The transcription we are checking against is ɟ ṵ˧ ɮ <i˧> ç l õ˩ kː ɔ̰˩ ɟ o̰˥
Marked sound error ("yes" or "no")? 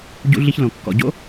no